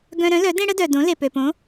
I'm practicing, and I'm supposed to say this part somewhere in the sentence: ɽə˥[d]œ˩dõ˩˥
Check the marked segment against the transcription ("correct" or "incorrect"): correct